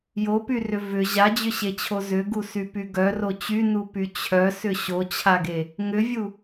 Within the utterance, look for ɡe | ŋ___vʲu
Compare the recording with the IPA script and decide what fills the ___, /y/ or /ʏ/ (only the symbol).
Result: ʏ